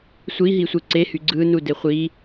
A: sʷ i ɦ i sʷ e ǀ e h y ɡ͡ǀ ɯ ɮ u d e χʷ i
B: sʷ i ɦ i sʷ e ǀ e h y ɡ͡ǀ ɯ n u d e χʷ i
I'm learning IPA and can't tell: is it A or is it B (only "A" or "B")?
B